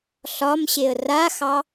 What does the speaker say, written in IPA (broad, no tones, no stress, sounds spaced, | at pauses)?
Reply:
ɬ ɒ m ɕ e ə̯ r a x ɑ